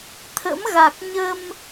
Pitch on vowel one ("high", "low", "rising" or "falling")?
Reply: rising